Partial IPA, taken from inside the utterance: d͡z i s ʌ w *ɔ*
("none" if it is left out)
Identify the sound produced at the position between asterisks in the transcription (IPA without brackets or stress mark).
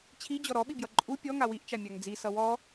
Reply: ɔ